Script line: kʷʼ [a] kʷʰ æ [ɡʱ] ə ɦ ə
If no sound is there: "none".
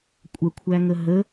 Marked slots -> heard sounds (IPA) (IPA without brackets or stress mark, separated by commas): ə, ŋ